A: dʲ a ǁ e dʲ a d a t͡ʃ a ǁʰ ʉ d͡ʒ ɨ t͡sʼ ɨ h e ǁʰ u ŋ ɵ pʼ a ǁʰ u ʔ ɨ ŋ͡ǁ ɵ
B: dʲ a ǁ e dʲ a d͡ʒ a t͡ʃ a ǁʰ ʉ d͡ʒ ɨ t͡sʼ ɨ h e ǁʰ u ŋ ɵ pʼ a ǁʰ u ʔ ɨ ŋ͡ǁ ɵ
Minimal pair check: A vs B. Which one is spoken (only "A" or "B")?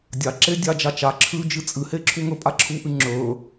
B